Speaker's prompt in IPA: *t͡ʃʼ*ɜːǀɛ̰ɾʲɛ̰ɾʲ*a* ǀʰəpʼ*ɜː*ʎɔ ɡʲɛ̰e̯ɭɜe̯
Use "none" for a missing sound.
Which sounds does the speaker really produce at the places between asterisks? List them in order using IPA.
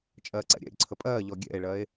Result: t͡ʃʼ, ə, ɜː

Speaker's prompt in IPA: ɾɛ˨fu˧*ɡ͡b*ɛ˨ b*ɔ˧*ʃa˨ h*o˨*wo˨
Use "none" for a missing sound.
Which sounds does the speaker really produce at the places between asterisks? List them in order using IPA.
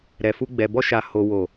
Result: ɡ͡b, ɔ˧, o˨

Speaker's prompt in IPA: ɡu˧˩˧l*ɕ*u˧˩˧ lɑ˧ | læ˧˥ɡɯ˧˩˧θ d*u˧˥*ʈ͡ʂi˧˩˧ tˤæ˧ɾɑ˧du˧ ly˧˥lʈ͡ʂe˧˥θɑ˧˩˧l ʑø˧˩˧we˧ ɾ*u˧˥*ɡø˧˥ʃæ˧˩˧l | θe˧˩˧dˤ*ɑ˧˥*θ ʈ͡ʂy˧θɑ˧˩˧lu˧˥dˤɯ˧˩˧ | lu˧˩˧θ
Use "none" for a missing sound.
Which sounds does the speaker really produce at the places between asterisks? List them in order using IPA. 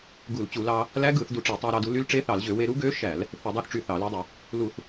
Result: t͡ɕ, u˧, u˧˥, ɑ˧˥

